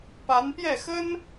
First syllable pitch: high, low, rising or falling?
rising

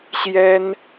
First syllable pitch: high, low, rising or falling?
high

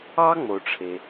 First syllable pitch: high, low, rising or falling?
high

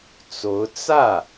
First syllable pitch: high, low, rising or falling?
rising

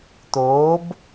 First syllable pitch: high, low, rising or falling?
rising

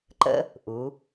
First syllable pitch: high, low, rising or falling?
high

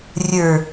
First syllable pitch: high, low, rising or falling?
low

